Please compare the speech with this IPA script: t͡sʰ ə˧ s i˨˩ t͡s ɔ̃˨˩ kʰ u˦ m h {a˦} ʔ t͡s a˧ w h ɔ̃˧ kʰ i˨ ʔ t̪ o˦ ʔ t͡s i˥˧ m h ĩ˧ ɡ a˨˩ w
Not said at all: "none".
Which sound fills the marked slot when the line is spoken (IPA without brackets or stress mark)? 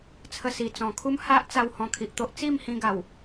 a˦